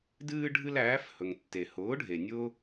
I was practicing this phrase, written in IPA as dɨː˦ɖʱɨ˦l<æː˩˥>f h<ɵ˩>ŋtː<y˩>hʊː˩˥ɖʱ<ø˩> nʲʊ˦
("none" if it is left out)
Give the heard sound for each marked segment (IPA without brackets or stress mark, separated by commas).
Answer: æː˩˥, ɵ˩, e˩, e˩